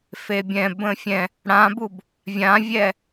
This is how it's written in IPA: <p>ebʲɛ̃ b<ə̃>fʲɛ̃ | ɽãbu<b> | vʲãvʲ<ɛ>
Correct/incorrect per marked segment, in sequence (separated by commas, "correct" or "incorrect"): incorrect, correct, correct, correct